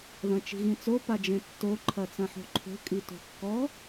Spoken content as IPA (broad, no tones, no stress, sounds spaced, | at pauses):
ð ɐ̃ t͡ʃ i̤ ɣ ĩ t͡s o p a d͡ʒ ẽ tː o ǃʰ ɐ t͡s ɐ̃ ħ o̤ ǃʰ o̤ kʼ i t o̤ kː ɔ